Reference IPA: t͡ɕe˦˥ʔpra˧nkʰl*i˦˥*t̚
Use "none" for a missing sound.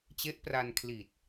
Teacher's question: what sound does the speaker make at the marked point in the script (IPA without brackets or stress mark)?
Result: i˨˩